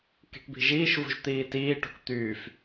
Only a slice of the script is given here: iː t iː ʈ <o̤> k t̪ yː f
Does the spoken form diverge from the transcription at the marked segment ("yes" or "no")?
no